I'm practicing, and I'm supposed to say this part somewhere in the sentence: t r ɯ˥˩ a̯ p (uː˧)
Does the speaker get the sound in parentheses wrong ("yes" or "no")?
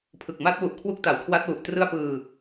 yes